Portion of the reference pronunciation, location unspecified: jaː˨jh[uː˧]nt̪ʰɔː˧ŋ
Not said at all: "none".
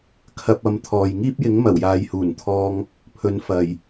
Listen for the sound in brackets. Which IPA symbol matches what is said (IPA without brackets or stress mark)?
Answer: uː˨˩